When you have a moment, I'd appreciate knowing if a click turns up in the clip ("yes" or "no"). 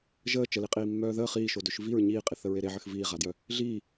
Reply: no